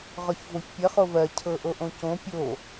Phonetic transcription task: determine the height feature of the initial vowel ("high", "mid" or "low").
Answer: mid